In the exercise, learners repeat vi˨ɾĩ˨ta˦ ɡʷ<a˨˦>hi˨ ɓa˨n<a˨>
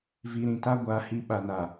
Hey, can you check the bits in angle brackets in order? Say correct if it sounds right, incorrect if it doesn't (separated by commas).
correct, correct